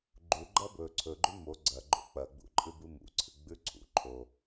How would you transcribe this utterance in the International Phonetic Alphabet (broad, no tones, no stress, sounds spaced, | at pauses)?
ɡ͡ǃ u ɡ͡ǃ ɐ b ɵ ǀʰ ɵ ɡ͡ǃ ʉ m o ɡ͡ǀ ɐ ɡ͡ǃ o̰ k͡p ɐ ɡ͡b ṵ ǃʼ ɨ b ɨ m ṵ ǀʰ ɨ ɡ͡b ʉ ǀʰ ṵ ǃʰ o